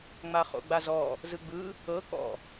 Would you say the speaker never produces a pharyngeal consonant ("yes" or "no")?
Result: yes